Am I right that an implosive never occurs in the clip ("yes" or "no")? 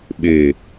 no